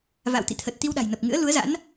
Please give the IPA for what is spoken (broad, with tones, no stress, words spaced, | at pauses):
va̰˧˨wt̪ḭ˧˨t̪ʰə˨˩t̚ t̪i˧wɗa̤˨˩jnə˨˩p̚ ŋɨ̰˧˥ə̯lu˨˦ə̯za̰˧˥n